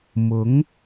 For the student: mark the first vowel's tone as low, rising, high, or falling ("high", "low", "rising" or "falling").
rising